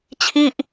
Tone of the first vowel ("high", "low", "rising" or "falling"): falling